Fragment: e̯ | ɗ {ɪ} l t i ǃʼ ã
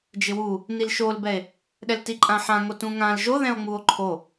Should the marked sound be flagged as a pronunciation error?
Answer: yes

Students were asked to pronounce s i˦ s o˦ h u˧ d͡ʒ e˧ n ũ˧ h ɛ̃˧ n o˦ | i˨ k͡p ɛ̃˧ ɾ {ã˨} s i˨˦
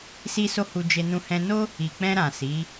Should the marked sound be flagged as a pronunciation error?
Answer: no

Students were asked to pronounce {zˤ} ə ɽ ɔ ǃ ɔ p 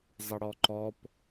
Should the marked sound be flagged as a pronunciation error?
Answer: no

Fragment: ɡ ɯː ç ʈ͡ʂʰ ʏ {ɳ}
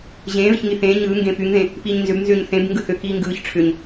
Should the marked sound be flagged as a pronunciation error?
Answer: yes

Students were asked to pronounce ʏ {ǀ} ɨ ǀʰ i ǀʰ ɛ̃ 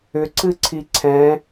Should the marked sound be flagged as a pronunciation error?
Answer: no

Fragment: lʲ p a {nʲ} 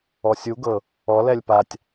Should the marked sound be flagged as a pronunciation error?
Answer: yes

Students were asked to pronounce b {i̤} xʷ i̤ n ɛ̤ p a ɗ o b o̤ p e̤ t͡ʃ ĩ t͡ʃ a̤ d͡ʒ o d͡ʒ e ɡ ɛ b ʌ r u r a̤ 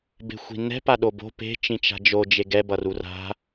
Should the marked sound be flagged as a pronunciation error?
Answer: yes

